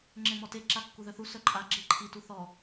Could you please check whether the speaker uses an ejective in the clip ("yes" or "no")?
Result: yes